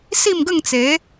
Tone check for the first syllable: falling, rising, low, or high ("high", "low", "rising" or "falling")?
falling